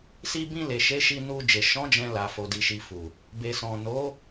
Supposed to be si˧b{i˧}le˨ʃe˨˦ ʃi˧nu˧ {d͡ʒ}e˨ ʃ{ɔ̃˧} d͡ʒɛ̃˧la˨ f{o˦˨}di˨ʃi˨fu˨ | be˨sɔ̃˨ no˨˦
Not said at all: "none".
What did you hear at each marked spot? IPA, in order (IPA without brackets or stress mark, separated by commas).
ĩ˧, d͡ʒ, ɔ̃˨˦, o˨